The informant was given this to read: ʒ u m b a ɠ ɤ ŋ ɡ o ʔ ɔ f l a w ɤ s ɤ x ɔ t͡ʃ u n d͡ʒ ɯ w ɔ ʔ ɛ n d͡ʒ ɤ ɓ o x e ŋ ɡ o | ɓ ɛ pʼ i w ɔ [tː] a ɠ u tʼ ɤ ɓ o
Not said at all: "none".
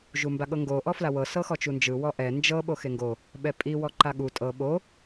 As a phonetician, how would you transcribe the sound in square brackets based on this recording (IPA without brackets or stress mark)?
ǃ